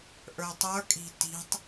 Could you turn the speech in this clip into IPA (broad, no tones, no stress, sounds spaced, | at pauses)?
ʔ ə˞ tˤ ə˞ kʼ i̤ t i̤ tˤ